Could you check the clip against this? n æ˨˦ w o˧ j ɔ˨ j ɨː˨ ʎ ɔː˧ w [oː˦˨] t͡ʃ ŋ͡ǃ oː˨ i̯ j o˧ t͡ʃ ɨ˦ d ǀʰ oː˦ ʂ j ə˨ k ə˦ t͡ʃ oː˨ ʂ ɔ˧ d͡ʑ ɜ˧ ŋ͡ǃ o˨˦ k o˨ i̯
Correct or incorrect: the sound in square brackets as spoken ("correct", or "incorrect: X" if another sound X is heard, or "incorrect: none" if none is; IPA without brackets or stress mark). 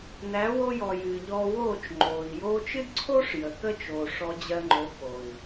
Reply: correct